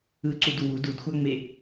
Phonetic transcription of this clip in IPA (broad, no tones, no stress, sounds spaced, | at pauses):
ɯ ǀ u d w u d u d xʷ a ŋ͡m e